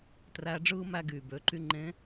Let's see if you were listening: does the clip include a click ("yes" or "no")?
yes